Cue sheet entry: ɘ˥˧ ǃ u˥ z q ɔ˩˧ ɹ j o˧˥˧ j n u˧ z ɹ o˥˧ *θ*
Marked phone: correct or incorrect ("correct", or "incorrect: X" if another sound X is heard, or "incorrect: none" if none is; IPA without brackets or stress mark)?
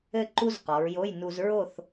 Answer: correct